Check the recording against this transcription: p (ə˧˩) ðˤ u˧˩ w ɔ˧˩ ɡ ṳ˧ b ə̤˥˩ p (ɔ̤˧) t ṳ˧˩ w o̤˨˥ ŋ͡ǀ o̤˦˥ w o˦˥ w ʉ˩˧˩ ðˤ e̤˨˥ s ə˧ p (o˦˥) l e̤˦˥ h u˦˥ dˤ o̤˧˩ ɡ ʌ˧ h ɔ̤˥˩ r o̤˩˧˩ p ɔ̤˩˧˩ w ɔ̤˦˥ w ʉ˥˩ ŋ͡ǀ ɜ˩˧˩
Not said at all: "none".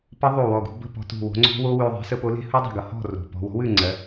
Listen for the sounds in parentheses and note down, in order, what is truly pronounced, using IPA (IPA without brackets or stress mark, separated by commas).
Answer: ə˦˥, ɔ̤˧, o˨˥